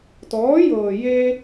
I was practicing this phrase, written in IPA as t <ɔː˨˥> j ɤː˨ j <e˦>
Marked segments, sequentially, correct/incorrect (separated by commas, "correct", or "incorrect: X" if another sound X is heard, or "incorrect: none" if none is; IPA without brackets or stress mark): correct, correct